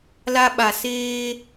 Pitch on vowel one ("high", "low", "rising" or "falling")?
high